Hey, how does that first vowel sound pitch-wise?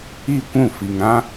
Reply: falling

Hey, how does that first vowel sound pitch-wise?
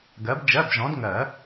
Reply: rising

